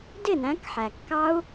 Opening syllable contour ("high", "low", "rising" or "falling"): falling